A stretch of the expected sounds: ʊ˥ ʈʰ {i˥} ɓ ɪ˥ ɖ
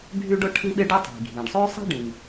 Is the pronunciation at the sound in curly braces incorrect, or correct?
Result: correct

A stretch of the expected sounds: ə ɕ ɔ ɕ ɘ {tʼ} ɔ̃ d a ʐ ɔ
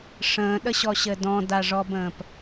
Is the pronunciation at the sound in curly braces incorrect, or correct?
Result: incorrect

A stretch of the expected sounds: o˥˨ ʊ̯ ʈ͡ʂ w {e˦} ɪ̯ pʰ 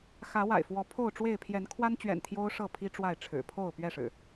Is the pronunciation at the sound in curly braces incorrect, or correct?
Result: incorrect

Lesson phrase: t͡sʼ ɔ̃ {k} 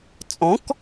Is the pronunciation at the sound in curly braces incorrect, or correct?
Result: correct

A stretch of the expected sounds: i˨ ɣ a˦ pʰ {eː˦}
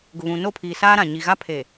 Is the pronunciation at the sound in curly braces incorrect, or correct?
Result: incorrect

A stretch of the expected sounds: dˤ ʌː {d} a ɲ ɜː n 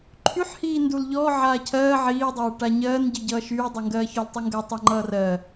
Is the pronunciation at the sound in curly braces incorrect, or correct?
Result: incorrect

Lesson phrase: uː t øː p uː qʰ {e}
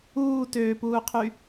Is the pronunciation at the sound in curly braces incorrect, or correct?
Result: incorrect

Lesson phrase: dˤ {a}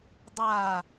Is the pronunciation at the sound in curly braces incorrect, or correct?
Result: correct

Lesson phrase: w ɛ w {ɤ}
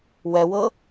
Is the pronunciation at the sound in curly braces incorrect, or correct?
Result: correct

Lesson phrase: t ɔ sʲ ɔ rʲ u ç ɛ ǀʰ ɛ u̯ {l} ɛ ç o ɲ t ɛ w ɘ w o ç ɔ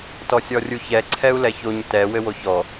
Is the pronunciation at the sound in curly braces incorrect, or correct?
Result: correct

